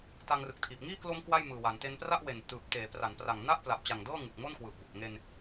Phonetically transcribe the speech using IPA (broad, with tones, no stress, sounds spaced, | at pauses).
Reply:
t a˧ ŋ r ɯ˨˩ k̚ tʰ iː˨˩ p̚ ŋ iː˥˩ k l o˦˥ m k w a˥˩ j m ɯː˨˩ w a˩˦ n t e˦˥ n p r a˥˩ ʔ w e˨˩ n t ɯː˨˩ p̚ t eː˩˦ p r a˩˦ n p r a˨˩ ŋ n a˥˩ ʔ p l a˨˩ p̚ t͡ɕ a˨˩ ŋ d ɤː˥˩ ŋ ɯ˨˩ k̚ ŋ o˥˩ n k w ɯː˨˩ p̚ b o˨˩ k̚ ŋ e˧ n